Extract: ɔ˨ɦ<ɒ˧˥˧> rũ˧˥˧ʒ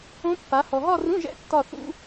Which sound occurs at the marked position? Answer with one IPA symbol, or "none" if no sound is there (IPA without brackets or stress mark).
ɒ˥˧